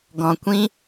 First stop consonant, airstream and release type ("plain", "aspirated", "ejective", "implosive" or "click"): plain